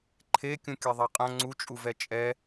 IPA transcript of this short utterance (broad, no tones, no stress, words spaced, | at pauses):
ǃʰe kʲũkʲɛðˤɛqʼɐ̃ ŋ͡ǀut͡ʃʼuvɛ t͡ʃʼɛ